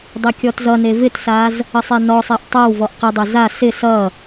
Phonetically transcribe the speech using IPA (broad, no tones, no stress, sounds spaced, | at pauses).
dˤ ɪ kʲ ɔ t z ʌ n e v ɪ t s a z | ə sˤ e n ɔ sˤ e ʔ tˤ a w v ɔ ʔ q ɪ dˤ e z a s ɪ s ʌ